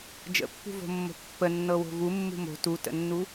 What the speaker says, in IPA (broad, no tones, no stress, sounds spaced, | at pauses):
d͡ʒ ə̰ pː ṳ v o̤ mː o̤ pː ə nː ɤ w o̤ v u mː ṳ m o̤ t u t ə̰ nː u